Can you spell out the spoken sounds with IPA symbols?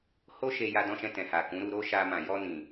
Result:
h o˦ ʃ e˧ j a˧ d ɔ̃˧ ʃ ɛ̃˧ t ɛ̃˨ h a˨ k ũ˨˦ ɾ u˧ ɾ o˦ ʃ a˧ m ã˨ j ɔ˧ n ĩ˨

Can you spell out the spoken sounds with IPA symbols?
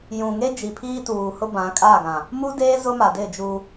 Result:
j ũ˨ ŋ e˦ d͡ʒ i˨ pʰ iː˦ t uː˨ h ʊ˦ b ã˨˦ kʼ a˦˨ ɡ ã˨ | m u˦ d eː˦ z ʊ˦ m a˨ d ɪ˦˨ d͡ʒ u˦

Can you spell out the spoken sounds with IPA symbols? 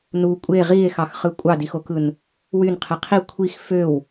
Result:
n u kʷʼ e ʁ i e̯ x ɑ x χ ɯ kʷʼ ɑ d i x o k ɯ n | w y n qʰ e qʰ i kʷʰ i x f ø w

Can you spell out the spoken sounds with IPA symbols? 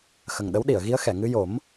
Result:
x ə˨˩ ŋ ɗ ə˧˥ w ɗ i˨˩˨ ə̯ ɣ i˧˥ ə̯ x ɛ˨˩˨ ŋ ɨ˧ j o˨˩˦ m

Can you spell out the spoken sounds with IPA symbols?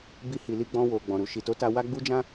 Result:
b i˧ h i˨ l i˧ ɡ͡b ɔ̃˧ w o˨ ɡ͡b ɔ̃˨ ɾ u˨ ʃ i˨ t o˨˦ t a˧ w a˦ ɡ͡b u˦ d͡ʒ ã˦

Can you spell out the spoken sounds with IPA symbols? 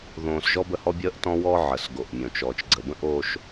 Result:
ð õː˨ s ʒ ɔ˦ b ə˦˨ h ɔ˦ bʲ əː˦ ʔ t ɔ̃˦ w ɔː˦ ʕ əː˨ s ɡ o˨ ʔ mʲ õ˨ t͡ʃ ɔː˨ t͡ʃ ɡ͡ǀ ə˨ b ə̃˦ ʔ oː˦ ʃ

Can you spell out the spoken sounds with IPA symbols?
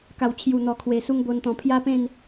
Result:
k a˨˩ w t͡ɕʰ j u˨˩ n̪ ɔ˨˩ kʰ w e˨˩ s u˦ ŋ b o˧ n t̪ ɔ̃˨˩ pʰ j a˦ p ẽ˥˧ n

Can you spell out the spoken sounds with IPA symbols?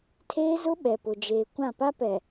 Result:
tʰ eː˦ z ʊ˦ ɓ ɛ˨ p ʊ˦ d͡ʒ eː˦ kʷ ã˦˨ p a˦ p ɛ˨

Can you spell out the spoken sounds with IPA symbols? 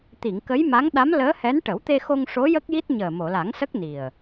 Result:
t̪ i˨˩˨ ŋ k ə˧˥ j m a˧˥ ŋ ɗ a˧˥ m l əː˧˥ h ɛ˧˥ n ʈ ə˨˩˦ w t̪ e˧ x o˧ ŋ ʂ o˧˥ j ə˦˥ k̚ j i˦˥ t̚ ɲ əː˨˩ m o˨˩˨ l a˨˩˦ ŋ s ə˦˥ k̚ n i˨˩ ə̯

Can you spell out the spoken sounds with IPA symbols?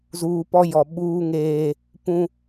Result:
z uː˨ p ɔ˦ j ɔ˨ ɓ uː˦ ŋ eː˦ | p ũ˦

